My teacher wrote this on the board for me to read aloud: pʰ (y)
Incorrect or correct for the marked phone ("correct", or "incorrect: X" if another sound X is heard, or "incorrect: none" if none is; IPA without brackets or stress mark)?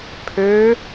incorrect: ø